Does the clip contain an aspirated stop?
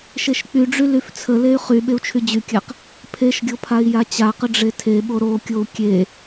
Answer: yes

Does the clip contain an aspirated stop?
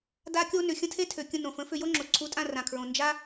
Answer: yes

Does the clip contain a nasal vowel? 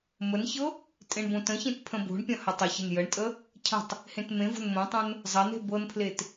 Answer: yes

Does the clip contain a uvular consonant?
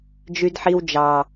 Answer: no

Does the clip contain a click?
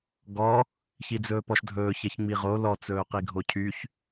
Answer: no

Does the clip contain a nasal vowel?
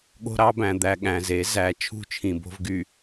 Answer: yes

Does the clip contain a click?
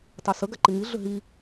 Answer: yes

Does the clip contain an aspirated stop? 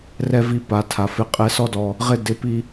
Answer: yes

